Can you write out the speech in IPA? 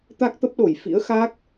t̪ a˦˥ k̚ t̪ ə˦˥ p̚ ɗ o˧˩ j f ḭ˧˥ ə̯ x a˦˥ k̚

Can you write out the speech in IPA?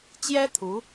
t͡ɕ j ɛ˥ t̪ʰ u˧˥

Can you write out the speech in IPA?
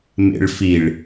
m ḛ ɭ f i ɭ

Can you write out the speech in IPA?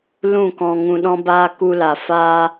l ũ˦˨ k ɔ̃˧ ŋ ũ˧ ɗ ɔ̃˦ b aː˦ k u˦ l a˧ f aː˦

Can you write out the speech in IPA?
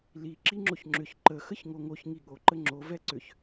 l i ǁ i ŋ͡ǁ o ç ŋ͡ǁ ʏ ç ǃ ə x ə ç ŋ o ŋ o ç ŋ i ɠ o ǃ ə ŋ͡ǁ o v ɛ ǀ ʏ ç

